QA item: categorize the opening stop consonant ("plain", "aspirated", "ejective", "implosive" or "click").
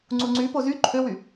click